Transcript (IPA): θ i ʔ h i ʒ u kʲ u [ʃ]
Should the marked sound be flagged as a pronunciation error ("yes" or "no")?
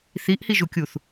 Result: yes